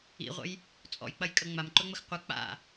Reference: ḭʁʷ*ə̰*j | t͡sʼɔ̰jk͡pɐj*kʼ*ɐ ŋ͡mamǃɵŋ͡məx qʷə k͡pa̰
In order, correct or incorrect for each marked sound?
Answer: correct, correct

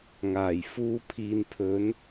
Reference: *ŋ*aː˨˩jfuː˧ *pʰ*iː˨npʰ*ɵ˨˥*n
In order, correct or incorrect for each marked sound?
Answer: correct, correct, correct

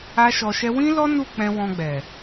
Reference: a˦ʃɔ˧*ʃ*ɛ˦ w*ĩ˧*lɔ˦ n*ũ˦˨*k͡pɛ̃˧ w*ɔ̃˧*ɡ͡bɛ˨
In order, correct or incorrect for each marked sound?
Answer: correct, incorrect: ĩ˦, incorrect: u˦˨, correct

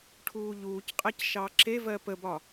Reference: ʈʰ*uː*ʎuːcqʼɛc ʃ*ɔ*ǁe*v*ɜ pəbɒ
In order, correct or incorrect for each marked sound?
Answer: correct, incorrect: ɑ, correct

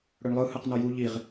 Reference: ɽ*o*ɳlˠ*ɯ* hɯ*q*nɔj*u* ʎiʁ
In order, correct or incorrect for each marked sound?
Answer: incorrect: ɵ, correct, correct, correct

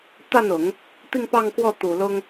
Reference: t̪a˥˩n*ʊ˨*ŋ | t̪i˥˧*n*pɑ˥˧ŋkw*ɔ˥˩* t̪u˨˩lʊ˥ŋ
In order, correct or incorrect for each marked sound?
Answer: incorrect: ʊ˨˩˦, incorrect: ŋ, correct

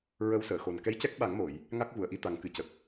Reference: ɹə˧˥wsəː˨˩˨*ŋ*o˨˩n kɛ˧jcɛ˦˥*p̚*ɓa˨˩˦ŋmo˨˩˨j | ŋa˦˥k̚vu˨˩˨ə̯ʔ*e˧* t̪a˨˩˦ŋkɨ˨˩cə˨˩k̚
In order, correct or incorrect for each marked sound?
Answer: incorrect: x, incorrect: k̚, incorrect: i˧

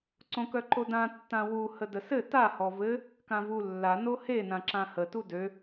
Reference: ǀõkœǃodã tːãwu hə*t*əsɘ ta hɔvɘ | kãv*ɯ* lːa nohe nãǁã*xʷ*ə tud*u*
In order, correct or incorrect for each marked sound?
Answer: incorrect: d, incorrect: u, incorrect: h, incorrect: ø

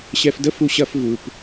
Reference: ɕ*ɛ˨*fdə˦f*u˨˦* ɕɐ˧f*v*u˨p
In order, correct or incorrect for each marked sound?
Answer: incorrect: ɛ˧, incorrect: u˧, correct

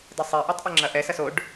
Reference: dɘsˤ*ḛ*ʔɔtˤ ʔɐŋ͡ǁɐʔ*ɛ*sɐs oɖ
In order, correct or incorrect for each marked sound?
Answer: incorrect: e, correct

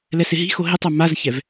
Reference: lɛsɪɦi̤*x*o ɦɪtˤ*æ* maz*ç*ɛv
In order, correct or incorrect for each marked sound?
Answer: correct, incorrect: a, correct

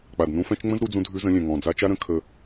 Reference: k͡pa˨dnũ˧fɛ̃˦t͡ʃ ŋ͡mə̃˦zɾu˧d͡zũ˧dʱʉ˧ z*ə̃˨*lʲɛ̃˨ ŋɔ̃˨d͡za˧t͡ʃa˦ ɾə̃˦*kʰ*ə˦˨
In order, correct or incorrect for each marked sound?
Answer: incorrect: ə̃˧, correct

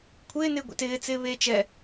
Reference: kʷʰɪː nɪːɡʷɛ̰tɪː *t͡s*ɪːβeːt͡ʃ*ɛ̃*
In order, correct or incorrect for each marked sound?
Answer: correct, incorrect: ɛ

